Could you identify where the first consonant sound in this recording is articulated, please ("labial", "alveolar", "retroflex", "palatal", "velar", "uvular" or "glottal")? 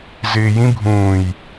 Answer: alveolar